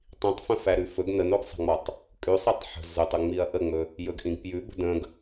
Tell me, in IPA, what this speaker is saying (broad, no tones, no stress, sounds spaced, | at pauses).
tˤ ĩ tˤ f ə̃ f æ ɾ ʉ f ɵ ɡ n ə n o ɡ sˤ æ̤ ŋ͡m ɒ tˤ | kʼ ʉ sˤ i tˤ ħ ə̤ z ɵ tˤ ə ŋ͡m i ɐ̯ ʔ ə ŋ͡m ɵ | j ɵ ɡ ʔ ĩ ɡ p j ʉ b ə̤ d ə̃ ɡ